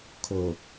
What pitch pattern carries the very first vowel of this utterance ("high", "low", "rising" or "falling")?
low